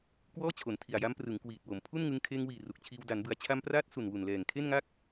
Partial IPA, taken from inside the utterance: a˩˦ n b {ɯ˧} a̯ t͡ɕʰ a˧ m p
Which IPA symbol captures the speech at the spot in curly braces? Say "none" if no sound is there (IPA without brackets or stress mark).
ɯ˩˦